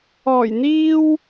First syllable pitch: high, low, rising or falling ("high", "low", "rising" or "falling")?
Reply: low